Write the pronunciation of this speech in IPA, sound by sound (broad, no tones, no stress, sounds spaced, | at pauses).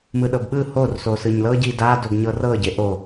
m ɯ ɗ ɤ b ɓ ɯ h o r s o s ɯ ɲ l ɤ ɟ i d a d o ɡ ɲ ɤ r ɤ ɟ e ʔ o